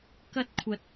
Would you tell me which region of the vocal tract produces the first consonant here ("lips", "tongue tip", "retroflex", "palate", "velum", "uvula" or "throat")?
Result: velum